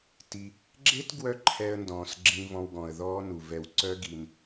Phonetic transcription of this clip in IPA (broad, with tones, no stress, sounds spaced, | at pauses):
t i˧ | ɡ͡ǁ e˦ t ɡ w œ˦ ǃʰ ɛ˧ ə̯ n d ɔ̃ː˨ s ɡ͡ǁ ĩ˧ v ɔ̃˧ w ɡ ɔ̃˨ ə̯ ð ɔː˦ n u˨ v ɛ˧ w ǀ œ˦ ɡ i˧ n